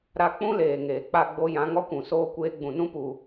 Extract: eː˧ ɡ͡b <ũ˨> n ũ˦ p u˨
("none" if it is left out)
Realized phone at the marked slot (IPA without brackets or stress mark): ũ˨